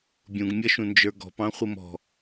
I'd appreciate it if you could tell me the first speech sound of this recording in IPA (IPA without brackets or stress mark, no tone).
bʲ